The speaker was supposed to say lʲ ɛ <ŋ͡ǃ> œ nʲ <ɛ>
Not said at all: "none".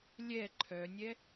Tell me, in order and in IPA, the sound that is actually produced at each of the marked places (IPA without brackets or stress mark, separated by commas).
ǃʰ, ɛ